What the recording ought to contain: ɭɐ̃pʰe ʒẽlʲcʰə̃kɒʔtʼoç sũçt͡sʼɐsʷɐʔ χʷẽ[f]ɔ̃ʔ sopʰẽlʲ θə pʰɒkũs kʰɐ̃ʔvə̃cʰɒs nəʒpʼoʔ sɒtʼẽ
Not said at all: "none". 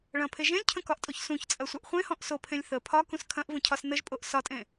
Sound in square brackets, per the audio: h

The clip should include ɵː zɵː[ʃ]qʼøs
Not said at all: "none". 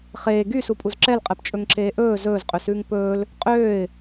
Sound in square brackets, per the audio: z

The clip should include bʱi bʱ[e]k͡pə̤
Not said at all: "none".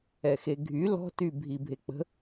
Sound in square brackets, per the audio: e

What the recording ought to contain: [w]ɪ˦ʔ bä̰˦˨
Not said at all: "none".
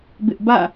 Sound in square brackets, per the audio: b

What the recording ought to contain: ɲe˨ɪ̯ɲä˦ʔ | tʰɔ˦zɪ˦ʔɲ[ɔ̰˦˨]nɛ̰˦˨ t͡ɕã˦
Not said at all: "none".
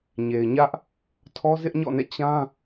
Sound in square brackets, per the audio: ɔ̰˦˨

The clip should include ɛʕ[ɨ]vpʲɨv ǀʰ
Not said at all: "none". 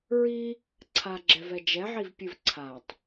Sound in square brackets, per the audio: i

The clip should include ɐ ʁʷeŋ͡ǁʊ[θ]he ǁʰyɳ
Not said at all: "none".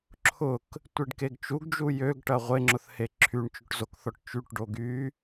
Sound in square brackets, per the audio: θ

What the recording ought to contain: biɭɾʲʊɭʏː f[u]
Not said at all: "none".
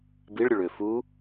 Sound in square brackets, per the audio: u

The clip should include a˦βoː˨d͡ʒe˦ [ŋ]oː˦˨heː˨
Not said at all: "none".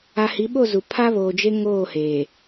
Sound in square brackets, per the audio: ŋ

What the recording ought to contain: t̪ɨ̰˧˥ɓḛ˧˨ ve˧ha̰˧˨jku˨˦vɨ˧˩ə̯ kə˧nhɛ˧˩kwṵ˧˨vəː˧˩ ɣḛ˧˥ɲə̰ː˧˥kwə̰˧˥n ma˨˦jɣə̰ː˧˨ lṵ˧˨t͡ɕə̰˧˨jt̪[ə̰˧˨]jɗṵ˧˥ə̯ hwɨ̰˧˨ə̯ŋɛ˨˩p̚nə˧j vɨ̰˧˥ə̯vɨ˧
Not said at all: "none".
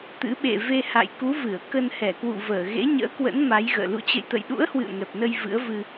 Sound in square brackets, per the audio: ə̰˧˨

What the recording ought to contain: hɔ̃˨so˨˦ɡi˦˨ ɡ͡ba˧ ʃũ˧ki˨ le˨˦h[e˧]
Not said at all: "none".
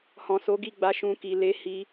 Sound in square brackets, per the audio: i˧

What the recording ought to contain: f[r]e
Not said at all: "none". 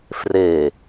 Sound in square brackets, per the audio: r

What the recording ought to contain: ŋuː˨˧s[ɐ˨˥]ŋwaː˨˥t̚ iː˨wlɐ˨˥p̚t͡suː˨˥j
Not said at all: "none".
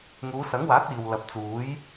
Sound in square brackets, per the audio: ɐ˨˥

